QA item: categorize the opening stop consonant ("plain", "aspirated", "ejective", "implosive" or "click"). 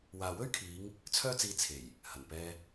aspirated